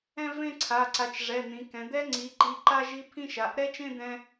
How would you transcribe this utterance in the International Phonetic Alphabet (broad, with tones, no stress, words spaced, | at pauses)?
ɛ̃˥˧vẽ˥˧ǀʰa˩˧˩ ǀa˩˧t͡ʃ ʐɛ˩˧˩n̪ĩ˩˧kɛ̃˩˧ d̪ɛ˦˥ ŋ͡ǀi˩˧ǃi˩˧˩ ǃa˥˧ʒi˦˥pʰĩ˥˧ʃa˩˧˩ʔ ɾɛ˦˥t͡ʃẽ˥˧d̪ɛ̃˧